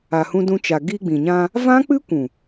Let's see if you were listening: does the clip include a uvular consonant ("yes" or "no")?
no